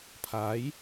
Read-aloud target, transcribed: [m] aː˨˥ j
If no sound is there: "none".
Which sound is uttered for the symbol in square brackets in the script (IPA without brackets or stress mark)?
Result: pʰ